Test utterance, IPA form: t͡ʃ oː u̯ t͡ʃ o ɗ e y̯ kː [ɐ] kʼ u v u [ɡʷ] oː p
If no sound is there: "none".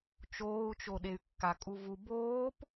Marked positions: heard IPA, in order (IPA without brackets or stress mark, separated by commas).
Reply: a, b